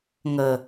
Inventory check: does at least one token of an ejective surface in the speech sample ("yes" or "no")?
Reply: no